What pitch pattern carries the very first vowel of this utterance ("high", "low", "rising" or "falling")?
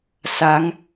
rising